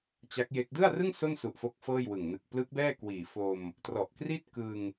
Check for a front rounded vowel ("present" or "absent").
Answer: absent